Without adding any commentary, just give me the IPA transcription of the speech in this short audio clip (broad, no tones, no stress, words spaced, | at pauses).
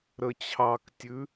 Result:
ɾət͡ɕʰɑktʲʉ